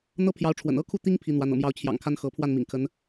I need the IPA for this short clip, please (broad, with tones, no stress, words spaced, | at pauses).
n̪ɤ˥pʰjɑ˧˥ʊ̯ʈ͡ʂʰwə̰˨˩n ɤ˥kʰu˥˩ t̪i˥ŋ pʰi˧˥n̪wa˧˥n ɤ̰˨˩mjɑ˧˥ʊ̯t͡ɕʰjɑ̰˨˩ŋkʰa˥n xɤ˧˥ pʰwa˥˩nmḭ˨˩ŋ kʰə˧˥n